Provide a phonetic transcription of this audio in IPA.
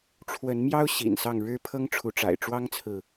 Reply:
ʈ͡ʂʰwə˨˦nmjɑ˦ʊ̯ ɕḭ˨˩nsɑ˥˨ŋɻɻ̩˦ pʰɤ˦ŋʈ͡ʂʰu˨˦ʈ͡ʂa̰˨˩ɪ̯ ʈ͡ʂwɑ˦ŋt͡sʰɹ̩˨

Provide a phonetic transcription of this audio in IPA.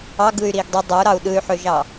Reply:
ɑɡɯy̯ ɾiːɡdˤy dˤøu̯ɾɑu̯ ɗɯy̯ħøʒɑ

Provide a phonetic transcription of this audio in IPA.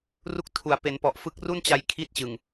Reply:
ru˥˩k̚tʰu˨˩a̯ pe˩˦npɔ˨˩ʔ fɯ˦˥k̚ru˥˩n t͡ɕa˧jkʰi˦˥t̚ t͡ɕɯ˨˩ŋ

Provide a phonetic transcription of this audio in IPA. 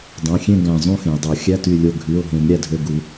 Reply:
dˤõ˩˧˩xʲẽ˥˨ ɡæ̃˧˩ zˤũ˥˨xẽ˩ə̯dˤo˨˩˦ xʲæ˧˥˧ty˧˩lʲo˧˩ ɡʱy˩˧˩ʊ̯ɦẽ˨˩˦m ɾʲæ˧˩dʱø˧˩ɡu˨˩˦

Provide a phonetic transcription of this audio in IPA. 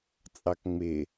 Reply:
t͡sʼɑkŋ͡mɪ

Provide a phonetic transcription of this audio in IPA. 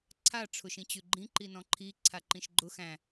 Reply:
ǀʰa ʈ͡ʂʰʊʃĩt͡ɕʉɡ͡ǃĩ ǃinɔ̃ǃʰi ǀʰaǃĩʃɡ͡ǃʊ xæ̃

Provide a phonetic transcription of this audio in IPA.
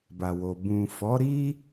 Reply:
ba˨wo˨ bũ˨fɔ˨˦ ɾi˦

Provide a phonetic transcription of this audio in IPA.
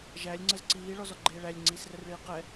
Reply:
ʒælʲ ŋ͡ǀəzǀiː ɭɔzɔɡ͡ǃeːɭælʲ ŋ͡ǀiːsrərɭiːqɛ

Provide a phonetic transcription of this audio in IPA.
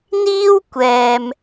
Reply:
n̪iː˥w kʷɛː˨m

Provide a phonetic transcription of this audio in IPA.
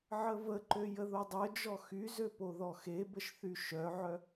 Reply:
ʕəvəǃø jəðodˤœd͡ʒɔ xyzø poðɔxebəʃ θyʃœʕœ

